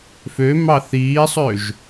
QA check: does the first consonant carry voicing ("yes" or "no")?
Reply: no